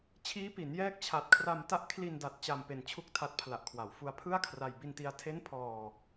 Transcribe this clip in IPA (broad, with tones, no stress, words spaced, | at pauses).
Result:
t͡ɕʰiː˦˥pi˩˦n jɛː˦˥k̚ t͡ɕʰa˨˩t̚kʰra˧mta˦˥ʔ kʰli˧nda˨˩t̚ t͡ɕa˧m pe˧nt͡ɕʰu˥˩k̚tʰa˦˥t̚ pʰla˨˩ʔkʰwa˩˦w fu˧a̯pʰɯ˥˩a̯kʰra˧j bi˧nti˧a̯ tʰe˦˥n pʰɔː˧